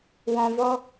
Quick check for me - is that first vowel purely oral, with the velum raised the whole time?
no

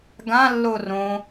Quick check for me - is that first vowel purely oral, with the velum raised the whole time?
no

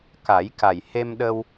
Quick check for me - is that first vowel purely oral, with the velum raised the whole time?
yes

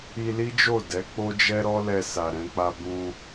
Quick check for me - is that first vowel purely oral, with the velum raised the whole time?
yes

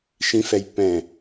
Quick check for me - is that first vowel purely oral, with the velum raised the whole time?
no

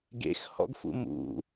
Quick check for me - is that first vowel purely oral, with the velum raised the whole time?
yes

